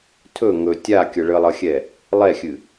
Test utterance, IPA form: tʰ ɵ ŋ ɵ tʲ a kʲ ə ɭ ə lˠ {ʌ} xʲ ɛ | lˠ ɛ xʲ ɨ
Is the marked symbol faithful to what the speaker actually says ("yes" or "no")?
yes